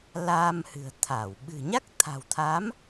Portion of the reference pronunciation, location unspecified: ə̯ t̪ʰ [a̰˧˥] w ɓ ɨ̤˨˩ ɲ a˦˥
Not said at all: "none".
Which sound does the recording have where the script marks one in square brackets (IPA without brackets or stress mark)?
a˧˩